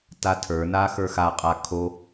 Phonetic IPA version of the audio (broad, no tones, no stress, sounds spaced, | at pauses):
t a tʰ ə˞ n a x ə˞ x a qʼ a kʰ o